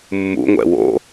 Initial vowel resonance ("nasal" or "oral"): oral